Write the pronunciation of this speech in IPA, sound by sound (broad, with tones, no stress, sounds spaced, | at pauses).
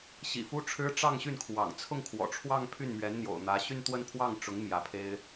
ɕ ḭ˨˩ f u˥ ʈ͡ʂʰ ɻ̩˥ ʈ͡ʂ ɑ˥˧ ŋ ɕ y˥˩ n kʰ w ɑ̰˨˩ ŋ t͡sʰ ʊ˥˩ ŋ kʰ w ɔ̰˨˩ ʈ͡ʂʰ w ɑ˥˧ ŋ pʰ y˥˩ n m ɥ ɛ˧˥ n n̪ j o̰˨˩ ʊ̯ n̪ ä˧˥ ɕ y˥˧ n t̪ w ə˥˧ n pʰ w ɑ˥˩ ŋ ʈ͡ʂ ʊ˧˥ ŋ m j ä˧˥ pʰ e˥ ɪ̯